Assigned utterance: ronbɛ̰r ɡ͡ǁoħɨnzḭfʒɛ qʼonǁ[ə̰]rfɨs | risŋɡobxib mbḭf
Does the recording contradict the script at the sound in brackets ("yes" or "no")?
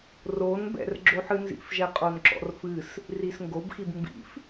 yes